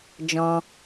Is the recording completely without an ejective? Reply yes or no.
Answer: yes